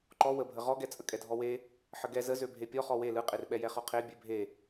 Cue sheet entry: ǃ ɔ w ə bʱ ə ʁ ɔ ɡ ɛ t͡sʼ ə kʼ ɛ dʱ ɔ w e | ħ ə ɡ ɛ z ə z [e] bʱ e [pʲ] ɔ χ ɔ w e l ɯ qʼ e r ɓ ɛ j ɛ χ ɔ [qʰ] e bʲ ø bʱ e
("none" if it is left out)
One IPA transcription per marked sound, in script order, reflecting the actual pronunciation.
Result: ø, pʲ, qʰ

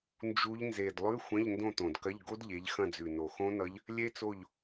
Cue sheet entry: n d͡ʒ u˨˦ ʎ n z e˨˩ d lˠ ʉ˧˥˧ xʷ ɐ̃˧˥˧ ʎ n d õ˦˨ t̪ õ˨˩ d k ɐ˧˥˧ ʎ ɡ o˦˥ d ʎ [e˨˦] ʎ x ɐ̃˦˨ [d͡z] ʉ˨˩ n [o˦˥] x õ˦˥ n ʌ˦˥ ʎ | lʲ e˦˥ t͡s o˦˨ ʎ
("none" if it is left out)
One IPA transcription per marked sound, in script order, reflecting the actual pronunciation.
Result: e˨˦, d͡z, o˨˩

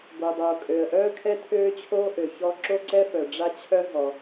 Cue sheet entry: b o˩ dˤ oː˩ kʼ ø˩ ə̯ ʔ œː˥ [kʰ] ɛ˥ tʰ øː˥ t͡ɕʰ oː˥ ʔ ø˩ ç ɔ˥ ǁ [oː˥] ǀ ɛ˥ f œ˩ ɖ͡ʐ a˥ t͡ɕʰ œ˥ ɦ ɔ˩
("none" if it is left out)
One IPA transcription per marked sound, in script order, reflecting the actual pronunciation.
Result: kʰ, o˥

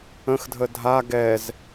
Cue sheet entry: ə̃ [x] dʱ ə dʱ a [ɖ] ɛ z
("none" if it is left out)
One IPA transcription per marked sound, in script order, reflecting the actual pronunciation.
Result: x, ɡ

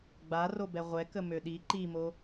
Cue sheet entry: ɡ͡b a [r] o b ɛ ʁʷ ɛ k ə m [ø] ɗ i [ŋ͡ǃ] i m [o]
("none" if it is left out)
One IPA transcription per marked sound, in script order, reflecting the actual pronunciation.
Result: r, ø, ǃ, o

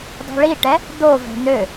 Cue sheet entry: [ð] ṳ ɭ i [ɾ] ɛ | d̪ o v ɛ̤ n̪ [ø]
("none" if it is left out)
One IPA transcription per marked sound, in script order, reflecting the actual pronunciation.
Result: dˤ, ʈ, ø

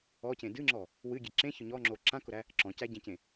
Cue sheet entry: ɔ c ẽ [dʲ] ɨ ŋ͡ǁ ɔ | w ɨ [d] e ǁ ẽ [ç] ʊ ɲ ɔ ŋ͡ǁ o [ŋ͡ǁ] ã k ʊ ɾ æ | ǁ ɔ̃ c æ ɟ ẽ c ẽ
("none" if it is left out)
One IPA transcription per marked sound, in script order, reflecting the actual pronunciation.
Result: d, ɡʲ, ç, ǁ

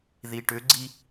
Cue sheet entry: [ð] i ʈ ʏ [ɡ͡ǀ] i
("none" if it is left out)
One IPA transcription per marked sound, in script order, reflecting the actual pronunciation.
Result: ð, ɡ͡ǀ

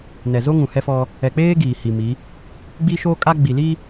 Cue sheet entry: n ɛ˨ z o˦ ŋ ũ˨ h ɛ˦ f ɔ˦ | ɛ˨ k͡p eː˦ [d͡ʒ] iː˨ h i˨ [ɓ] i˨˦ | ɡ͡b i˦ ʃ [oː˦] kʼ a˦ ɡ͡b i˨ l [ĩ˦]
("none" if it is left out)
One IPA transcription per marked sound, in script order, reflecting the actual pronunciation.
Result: ɡ, m, oː˦, i˦

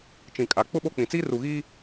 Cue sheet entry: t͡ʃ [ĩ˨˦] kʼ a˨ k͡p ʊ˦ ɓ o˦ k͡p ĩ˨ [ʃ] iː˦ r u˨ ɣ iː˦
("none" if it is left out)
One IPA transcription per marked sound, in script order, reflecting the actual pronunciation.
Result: ĩ˨, t͡s

